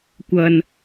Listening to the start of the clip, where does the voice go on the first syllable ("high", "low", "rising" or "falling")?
low